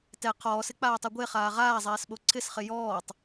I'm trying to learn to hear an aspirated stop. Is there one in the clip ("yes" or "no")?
yes